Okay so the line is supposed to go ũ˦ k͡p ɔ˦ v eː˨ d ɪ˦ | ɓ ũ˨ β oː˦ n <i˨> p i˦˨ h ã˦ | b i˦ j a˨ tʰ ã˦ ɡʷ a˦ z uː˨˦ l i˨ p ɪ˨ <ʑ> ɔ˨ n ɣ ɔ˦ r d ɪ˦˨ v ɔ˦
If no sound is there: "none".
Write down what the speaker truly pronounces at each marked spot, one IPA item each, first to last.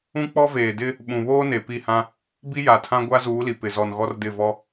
e˨, z

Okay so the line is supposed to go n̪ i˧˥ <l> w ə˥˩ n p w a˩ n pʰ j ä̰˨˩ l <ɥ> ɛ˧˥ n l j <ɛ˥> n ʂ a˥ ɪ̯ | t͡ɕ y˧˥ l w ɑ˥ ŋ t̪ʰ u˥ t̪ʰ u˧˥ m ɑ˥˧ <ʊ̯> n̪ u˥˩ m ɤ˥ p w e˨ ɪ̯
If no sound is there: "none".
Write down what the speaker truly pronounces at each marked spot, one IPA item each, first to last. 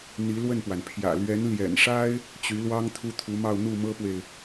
l, ɥ, ɛ̰˨˩, ʊ̯

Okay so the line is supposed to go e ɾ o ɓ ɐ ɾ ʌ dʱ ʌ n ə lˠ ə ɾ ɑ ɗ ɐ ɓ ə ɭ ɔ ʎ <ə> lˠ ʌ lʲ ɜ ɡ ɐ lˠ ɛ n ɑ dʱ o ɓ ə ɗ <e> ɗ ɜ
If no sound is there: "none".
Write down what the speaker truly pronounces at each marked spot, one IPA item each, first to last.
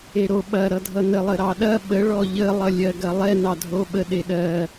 ə, e

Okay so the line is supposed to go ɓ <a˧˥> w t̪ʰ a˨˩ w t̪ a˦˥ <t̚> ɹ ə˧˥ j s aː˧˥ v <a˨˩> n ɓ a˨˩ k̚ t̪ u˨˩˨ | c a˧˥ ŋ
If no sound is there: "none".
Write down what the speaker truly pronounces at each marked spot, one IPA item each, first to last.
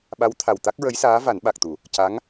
a˧˥, k̚, a˨˩˦

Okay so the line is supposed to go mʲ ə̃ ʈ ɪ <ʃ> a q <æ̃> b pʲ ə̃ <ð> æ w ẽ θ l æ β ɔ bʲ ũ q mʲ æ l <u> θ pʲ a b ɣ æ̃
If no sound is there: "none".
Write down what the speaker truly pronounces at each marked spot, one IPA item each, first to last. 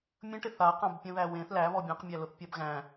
θ, ã, ð, ʊ

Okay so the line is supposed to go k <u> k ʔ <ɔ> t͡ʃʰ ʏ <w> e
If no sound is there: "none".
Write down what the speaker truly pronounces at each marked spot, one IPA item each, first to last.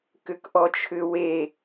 ʏ, ɔ, w

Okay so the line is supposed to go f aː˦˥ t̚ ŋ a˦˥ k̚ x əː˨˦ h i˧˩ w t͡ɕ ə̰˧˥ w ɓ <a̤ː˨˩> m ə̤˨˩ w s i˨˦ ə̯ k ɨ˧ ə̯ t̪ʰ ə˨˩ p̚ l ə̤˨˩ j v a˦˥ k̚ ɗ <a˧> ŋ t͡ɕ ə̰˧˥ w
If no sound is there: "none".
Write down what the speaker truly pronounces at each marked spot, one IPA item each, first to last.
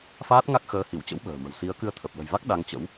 ə̤ː˨˩, a˧

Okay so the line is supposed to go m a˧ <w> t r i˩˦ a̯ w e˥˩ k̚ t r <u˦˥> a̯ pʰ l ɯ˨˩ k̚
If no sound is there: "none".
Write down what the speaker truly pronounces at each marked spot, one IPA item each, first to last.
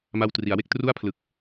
w, u˥˩

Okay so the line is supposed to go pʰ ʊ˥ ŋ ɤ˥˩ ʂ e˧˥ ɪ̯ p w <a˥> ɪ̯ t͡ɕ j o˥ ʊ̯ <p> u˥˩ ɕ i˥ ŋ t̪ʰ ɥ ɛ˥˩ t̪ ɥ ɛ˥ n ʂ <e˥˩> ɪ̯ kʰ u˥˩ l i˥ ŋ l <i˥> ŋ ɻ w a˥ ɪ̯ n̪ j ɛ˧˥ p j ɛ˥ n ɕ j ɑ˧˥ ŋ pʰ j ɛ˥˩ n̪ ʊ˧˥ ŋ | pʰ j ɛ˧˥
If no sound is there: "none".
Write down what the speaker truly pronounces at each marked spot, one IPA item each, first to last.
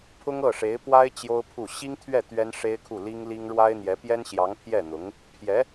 a˥, pʰ, e˥, i˥

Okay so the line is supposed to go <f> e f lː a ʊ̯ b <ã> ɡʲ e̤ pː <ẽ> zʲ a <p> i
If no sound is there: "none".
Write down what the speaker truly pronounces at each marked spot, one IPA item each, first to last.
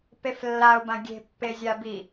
p, ã, e, b

